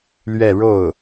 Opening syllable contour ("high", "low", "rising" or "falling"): falling